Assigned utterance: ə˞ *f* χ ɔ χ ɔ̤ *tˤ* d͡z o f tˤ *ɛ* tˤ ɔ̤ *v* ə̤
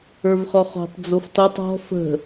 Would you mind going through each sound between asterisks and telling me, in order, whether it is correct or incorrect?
incorrect: v, correct, correct, incorrect: f

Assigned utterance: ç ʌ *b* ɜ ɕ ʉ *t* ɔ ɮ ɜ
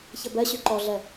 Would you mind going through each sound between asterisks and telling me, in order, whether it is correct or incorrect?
correct, incorrect: ǃ

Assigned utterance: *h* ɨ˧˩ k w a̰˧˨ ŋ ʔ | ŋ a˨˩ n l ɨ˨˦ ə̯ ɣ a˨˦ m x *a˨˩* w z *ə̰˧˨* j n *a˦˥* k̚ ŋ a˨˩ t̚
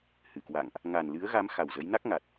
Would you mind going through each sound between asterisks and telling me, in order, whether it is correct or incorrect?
correct, correct, incorrect: ə˨˦, correct

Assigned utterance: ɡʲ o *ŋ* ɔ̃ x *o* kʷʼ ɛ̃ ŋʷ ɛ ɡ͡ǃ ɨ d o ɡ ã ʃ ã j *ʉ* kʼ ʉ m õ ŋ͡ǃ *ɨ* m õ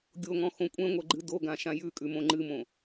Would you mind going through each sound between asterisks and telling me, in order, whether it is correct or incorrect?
correct, incorrect: õ, correct, correct

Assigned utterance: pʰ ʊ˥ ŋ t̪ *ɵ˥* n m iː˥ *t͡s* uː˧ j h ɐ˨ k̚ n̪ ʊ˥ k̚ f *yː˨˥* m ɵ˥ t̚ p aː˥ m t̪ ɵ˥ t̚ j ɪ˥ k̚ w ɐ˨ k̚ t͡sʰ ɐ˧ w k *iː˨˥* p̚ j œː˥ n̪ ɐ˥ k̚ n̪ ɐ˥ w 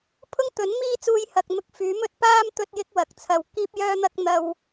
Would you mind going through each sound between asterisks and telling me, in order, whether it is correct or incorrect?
incorrect: ɵ˨˥, correct, correct, incorrect: iː˥

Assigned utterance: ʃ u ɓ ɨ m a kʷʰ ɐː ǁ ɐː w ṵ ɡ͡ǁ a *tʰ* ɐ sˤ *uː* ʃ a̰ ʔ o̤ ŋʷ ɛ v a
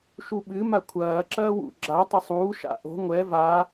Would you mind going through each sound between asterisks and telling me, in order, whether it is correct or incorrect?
incorrect: tˤ, correct

